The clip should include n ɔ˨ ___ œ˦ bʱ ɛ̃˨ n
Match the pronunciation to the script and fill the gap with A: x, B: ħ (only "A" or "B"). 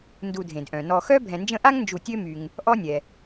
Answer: A